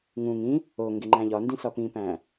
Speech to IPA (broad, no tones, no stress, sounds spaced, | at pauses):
ŋ ũ ŋ ĩ | o ŋ ɡ e ŋ͡ǃ æ̃ ʎ ɒ n d ĩ s ɒ p ĩ p æ̃